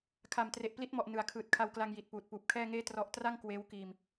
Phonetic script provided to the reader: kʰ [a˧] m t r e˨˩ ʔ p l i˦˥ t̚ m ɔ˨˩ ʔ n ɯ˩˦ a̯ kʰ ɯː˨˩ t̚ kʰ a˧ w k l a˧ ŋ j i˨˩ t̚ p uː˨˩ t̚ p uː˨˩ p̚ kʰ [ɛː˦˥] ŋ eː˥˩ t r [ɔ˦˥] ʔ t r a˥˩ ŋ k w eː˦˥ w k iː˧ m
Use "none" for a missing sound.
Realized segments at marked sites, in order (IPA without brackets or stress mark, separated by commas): a˨˩, ɛː˥˩, ɔ˦˥